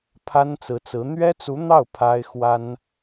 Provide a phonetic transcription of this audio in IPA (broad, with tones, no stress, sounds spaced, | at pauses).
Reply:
pʰ a˥ n t͡s ɹ̩˧˥ t͡s ɹ̩˧˥ n̪ ɥ ɛ˥ t͡s u˧˥ n̪ ɑ˥˩ ʊ̯ pʰ a˥ ɪ̯ x w a˥ n